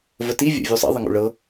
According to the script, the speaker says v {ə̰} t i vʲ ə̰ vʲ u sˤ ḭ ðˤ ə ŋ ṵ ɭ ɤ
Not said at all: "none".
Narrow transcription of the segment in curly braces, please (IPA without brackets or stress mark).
ə